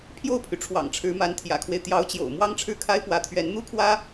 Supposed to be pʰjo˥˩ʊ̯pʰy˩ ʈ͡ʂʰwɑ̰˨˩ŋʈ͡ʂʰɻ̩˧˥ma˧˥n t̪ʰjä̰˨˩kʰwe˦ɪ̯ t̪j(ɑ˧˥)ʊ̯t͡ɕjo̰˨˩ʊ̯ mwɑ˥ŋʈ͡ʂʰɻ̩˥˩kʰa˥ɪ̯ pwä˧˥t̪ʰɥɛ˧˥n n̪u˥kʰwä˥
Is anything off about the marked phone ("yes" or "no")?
no